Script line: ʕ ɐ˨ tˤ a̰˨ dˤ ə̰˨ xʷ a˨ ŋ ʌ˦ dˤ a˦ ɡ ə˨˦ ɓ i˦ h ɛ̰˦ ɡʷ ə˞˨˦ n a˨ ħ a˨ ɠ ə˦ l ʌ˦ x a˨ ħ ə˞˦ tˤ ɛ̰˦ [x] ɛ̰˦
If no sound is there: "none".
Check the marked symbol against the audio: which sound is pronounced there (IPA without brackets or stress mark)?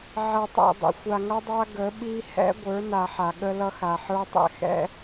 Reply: x